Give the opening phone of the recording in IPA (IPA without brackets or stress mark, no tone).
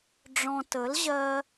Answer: ɖ͡ʐ